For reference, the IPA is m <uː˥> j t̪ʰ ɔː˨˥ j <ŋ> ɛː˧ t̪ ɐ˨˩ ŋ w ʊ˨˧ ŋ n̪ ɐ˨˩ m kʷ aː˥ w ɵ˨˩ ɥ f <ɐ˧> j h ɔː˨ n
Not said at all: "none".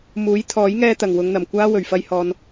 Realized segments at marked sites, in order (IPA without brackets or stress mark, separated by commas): uː˨˥, ŋ, ɐ˧